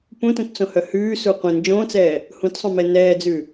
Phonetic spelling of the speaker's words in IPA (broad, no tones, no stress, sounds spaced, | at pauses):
p ũ t ũ t t͡s õ h œ h ʉː s u qʷ ĩ n d͡ʒ õː t͡s ɛː | h ũ t sˤ õ m ɛ n ɛː d͡z ʉ